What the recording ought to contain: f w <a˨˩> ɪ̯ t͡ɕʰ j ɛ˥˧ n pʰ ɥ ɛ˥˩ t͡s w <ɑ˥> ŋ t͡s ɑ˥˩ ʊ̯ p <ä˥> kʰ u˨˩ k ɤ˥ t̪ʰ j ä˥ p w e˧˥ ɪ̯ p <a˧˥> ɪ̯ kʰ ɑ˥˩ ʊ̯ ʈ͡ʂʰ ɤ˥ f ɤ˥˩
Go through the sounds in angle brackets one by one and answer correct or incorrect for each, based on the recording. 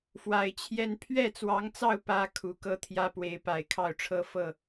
correct, incorrect: ɑ˧˥, correct, incorrect: a˨˩

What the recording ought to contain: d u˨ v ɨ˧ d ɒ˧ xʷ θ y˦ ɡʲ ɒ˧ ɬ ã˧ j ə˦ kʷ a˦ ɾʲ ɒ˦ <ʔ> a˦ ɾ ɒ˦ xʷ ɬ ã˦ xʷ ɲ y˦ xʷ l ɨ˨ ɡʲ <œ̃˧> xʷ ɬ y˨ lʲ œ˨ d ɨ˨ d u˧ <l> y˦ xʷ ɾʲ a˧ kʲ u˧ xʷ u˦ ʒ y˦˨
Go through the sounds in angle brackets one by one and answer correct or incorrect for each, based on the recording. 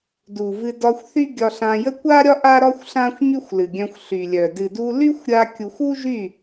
correct, correct, correct

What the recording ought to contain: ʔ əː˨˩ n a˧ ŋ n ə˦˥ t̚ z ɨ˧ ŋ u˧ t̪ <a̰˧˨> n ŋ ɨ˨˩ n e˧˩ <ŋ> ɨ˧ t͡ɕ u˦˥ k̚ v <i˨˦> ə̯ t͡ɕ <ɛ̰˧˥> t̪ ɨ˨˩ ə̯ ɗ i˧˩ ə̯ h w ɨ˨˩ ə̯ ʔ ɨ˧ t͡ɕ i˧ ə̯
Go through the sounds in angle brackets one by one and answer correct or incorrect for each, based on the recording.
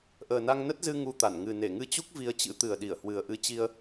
incorrect: a˧˩, correct, incorrect: i˧, incorrect: ɨ̰˧˥

